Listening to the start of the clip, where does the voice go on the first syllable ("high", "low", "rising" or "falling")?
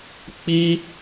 high